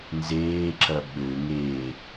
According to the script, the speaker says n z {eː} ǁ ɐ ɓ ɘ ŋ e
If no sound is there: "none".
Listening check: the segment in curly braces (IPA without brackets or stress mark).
eː